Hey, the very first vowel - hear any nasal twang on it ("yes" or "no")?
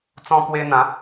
yes